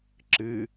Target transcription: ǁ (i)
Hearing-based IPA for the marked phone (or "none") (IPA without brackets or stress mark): ɨ